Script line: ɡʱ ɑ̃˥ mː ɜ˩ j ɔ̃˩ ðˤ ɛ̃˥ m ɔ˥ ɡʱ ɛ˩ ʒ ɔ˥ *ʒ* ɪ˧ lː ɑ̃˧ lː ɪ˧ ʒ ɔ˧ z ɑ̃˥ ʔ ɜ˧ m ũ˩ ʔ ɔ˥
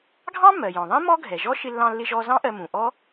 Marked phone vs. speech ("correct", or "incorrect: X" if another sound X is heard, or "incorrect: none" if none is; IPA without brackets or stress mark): incorrect: ʃ